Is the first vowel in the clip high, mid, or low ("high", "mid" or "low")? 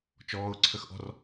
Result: mid